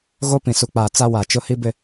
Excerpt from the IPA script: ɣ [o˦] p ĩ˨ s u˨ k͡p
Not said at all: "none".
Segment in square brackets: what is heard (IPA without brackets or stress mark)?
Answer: o˦